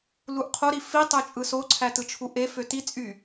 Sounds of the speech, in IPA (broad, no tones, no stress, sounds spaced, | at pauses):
l u ʔ qʰ o ɾ i f i tˤ ø t͡ʃʼ ɯ s o ǀʰ æ t ɯ t͡ʃʰ u ʔ e f ø t i t͡sʼ y